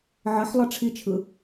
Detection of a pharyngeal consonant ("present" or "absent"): present